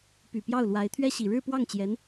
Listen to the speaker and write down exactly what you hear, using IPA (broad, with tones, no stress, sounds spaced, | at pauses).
p y˨˩ p j ɑ˥˩ ʊ̯ l w a˧˥ ɪ̯ t̪ʰ ɥ ɛ˥ ɕ i˨˩ ɻ ɻ̩˥˧ p w ɑ˥˩ ŋ t͡ɕ j ɛ˧˥ n